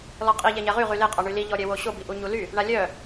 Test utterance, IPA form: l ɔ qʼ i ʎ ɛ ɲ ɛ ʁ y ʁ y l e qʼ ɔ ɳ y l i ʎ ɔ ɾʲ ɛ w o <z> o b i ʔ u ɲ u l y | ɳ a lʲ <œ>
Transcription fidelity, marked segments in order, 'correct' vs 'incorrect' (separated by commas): incorrect, correct